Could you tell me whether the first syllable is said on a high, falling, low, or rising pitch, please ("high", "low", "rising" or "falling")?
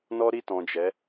high